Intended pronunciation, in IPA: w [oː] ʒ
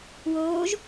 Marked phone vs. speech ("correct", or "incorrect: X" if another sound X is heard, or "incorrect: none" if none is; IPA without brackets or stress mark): correct